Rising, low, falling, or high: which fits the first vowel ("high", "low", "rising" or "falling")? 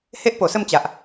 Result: high